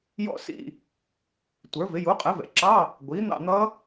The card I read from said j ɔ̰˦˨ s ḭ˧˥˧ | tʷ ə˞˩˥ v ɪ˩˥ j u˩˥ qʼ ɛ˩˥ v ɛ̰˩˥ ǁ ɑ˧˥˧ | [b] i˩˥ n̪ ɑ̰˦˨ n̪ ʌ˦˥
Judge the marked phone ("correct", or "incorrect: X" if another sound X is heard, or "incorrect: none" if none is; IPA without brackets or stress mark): incorrect: ɡʷ